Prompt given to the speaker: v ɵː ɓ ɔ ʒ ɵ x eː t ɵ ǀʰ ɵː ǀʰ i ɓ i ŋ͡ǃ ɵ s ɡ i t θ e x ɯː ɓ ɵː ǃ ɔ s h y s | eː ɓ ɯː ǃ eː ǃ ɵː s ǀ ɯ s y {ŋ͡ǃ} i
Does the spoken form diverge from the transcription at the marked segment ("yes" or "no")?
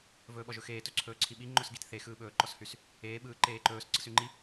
no